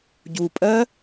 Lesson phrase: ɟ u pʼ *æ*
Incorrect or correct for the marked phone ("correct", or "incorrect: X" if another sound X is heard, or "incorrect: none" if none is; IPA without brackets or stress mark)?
incorrect: ɜ